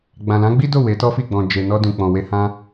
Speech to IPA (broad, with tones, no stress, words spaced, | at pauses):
ɡ͡bã˨lã˨˦ɡ͡bi˦do˦˨ we˨˦tɔ˦fi˦˨ɡ͡bɔ̃˨ d͡ʒe˨nɔ˧ dũ˨k͡pɔ̃˨we˧ hã˦